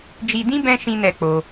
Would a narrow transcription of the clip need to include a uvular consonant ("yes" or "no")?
no